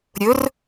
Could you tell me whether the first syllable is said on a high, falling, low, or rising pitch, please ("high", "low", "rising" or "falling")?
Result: rising